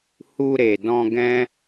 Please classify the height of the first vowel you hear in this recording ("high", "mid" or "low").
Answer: high